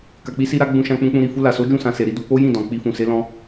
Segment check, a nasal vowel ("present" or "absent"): present